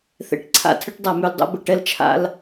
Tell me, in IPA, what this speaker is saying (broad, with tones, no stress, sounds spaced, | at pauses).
θ ɛ̰˨ ʈ ǀʰ a̰˦ tʰ ɘ˦ ʈ dˤ a˨ m ʉ˨ l dˤ o̰˦ b ə˨ ʈ ɛ˦ l t͡ʃʰ a̰˦ l